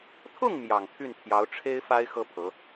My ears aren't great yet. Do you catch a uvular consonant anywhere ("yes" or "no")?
no